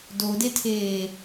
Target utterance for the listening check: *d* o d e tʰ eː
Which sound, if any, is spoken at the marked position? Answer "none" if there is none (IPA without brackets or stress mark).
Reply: d